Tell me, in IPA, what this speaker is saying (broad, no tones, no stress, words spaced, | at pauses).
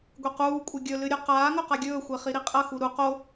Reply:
ɡʷequːkʷʼɐ ɡʲɵlɨ ɾʲʉqaːŋɵ qaɡʲɵːxʷe χiɾiqʼɐxu ɾu qo